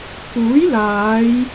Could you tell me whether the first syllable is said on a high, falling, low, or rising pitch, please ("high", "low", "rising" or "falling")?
rising